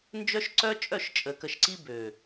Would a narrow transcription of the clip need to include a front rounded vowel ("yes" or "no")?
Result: yes